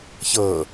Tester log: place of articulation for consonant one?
palatal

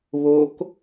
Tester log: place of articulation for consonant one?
labial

